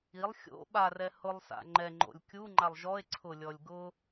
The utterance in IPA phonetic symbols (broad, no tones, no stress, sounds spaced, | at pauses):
i lˠ xʲ o̰ ɓ a r ɛ h ʊ lˠ s a̰ ŋ͡ǃ ɛ ŋ͡ǃ o̰ lʲ kʲ u ŋ͡ǃ a lˠ ʒ ɔ e̯ ǀʰ ʊ lʲ ɔ lʲ ɡ ʊ